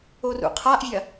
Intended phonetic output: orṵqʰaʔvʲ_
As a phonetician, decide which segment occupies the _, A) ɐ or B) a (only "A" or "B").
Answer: A